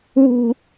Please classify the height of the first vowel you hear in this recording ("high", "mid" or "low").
high